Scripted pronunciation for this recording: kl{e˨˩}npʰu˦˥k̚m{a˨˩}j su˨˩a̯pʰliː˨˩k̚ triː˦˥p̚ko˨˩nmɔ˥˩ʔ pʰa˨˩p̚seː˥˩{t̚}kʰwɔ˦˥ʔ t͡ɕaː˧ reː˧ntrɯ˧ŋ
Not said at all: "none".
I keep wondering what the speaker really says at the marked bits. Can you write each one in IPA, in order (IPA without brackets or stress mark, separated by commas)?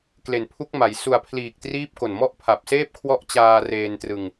e˨˩, a˩˦, p̚